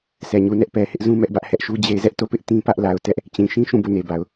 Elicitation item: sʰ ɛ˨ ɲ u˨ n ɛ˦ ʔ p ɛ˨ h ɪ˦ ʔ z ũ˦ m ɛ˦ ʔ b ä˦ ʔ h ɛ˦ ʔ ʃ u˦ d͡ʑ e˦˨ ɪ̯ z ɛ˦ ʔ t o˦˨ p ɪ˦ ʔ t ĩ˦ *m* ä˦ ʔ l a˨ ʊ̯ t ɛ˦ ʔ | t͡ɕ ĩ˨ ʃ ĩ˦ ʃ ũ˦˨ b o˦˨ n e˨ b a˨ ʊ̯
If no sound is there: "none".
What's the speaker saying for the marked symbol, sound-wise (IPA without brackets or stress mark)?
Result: p